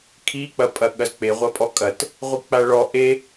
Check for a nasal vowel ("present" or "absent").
absent